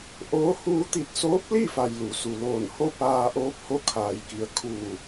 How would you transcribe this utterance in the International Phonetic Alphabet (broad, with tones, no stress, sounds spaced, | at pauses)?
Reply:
ʔ oː˧˥ h uː˧ t̪ i˧˩ t̚ s oː˧˥ p̚ l i˥˨ f a˩ j l u˩˧ s u˩ l oː˧˩ n h o˥˨ p aː˧ ʔ oː˧˥ p̚ h o˧ kʰ aː˩ j k i˩ ə̯ kʰ uː˧˩